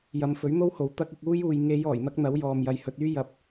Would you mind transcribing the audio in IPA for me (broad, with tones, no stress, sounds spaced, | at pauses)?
j ɐ˨˧ m f ɵ˨˥ ɥ n̪ o˥ w h o˨ w t̪ ɐ˥ k̚ ɪ˧ k̚ uː˥ j uː˨ j ŋ e˨˧ j ɔː˨˩ j n̪ ɐ˥ k̚ n̪ ɐ˨˥ w j ɔː˨ m j ɐ˨˧ j h ɵ˧ t̚ yː˥ j ɐ˨˥ p̚